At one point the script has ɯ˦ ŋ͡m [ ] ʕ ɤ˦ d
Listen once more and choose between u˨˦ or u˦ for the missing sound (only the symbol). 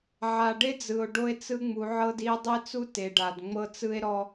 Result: u˨˦